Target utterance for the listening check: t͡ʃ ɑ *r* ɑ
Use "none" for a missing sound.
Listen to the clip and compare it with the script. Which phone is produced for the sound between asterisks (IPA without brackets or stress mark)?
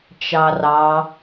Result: r